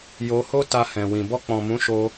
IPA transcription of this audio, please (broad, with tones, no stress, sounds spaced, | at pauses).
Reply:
j o˧ h o˦ t a˧ h ɛ̃˨ w ĩ˨ b ɔ˧ k͡p ɔ̃˨ m ũ˨˦ ʃ o˧